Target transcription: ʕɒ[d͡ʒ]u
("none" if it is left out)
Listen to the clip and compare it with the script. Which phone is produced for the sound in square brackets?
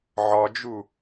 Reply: d͡ʒ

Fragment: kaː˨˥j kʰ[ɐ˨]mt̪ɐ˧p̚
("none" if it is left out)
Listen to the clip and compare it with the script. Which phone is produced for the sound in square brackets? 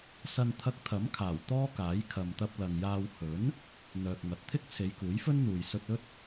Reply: ɐ˨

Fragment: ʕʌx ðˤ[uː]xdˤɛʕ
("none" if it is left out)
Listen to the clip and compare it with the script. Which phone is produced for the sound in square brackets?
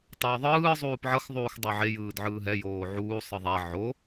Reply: uː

